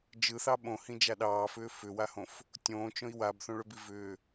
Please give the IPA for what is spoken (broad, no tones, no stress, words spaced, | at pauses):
d͡ʒɯθɑ ɓõhĩd͡ʒa ɗɑːfʏː fʏwahõf | tʲõːt͡ʃõi̯ wabθõɭʏbi vʏː